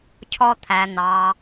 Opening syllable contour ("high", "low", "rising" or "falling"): low